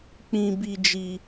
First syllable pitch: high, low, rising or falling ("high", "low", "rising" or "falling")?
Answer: high